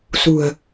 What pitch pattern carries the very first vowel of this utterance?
low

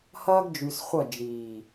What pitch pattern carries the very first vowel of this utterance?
high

